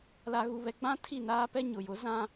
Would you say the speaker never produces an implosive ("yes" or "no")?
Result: yes